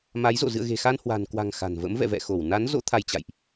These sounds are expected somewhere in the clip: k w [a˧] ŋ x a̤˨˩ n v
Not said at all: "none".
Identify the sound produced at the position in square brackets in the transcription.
a̤˨˩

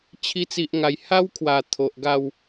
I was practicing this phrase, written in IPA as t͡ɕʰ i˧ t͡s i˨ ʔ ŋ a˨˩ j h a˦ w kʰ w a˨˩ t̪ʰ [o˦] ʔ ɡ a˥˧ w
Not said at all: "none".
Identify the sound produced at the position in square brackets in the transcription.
o˨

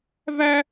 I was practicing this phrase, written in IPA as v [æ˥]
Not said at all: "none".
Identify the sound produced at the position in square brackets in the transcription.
æ˥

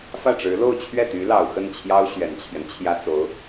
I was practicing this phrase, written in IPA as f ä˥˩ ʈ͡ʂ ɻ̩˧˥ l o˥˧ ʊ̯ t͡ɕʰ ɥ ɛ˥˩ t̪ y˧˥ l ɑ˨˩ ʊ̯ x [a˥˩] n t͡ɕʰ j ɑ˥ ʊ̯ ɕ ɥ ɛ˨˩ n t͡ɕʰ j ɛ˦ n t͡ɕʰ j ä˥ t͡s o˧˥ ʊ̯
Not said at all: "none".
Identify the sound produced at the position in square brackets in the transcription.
ə˥˩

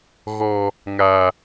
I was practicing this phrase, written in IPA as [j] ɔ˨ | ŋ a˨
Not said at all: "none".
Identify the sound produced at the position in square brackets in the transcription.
ɣ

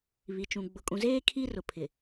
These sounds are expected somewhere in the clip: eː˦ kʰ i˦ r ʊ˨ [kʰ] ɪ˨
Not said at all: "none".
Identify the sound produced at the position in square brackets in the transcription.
pʰ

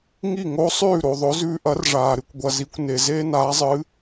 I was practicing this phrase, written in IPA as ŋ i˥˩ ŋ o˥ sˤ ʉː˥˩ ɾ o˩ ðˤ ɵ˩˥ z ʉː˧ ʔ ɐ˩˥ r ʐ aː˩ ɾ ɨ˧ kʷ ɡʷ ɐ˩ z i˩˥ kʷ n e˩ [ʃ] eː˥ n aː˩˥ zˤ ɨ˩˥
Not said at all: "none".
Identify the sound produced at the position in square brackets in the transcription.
z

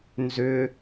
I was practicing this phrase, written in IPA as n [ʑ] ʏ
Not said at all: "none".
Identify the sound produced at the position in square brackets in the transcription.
z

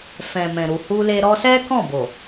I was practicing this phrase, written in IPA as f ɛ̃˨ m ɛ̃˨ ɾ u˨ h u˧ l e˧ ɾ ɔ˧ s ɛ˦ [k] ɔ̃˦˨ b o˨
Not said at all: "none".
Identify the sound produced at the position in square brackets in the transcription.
k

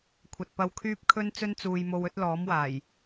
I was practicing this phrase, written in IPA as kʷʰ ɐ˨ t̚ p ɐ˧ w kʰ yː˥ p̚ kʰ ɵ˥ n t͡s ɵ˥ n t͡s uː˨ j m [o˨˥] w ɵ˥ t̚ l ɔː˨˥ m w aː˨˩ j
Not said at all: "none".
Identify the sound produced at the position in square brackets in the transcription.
o˧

